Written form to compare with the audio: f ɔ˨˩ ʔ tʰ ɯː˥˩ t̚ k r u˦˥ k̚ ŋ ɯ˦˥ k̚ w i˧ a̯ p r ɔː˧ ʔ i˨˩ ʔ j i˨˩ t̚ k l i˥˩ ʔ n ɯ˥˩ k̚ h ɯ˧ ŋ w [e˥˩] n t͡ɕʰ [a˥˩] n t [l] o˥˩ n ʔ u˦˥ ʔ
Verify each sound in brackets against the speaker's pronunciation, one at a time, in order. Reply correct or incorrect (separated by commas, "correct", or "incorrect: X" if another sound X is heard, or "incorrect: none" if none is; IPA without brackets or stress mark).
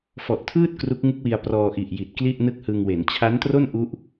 incorrect: e˩˦, incorrect: a˦˥, incorrect: r